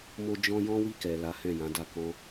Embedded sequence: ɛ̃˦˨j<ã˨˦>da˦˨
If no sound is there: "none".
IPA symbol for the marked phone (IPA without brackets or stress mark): ã˨˦